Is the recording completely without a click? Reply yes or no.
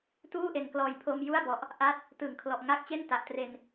yes